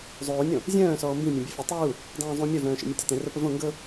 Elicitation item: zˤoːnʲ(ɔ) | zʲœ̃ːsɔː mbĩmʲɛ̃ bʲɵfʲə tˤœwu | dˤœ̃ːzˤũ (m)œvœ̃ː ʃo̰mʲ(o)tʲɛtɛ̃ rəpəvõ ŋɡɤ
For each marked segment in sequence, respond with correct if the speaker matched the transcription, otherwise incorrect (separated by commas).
incorrect, incorrect, incorrect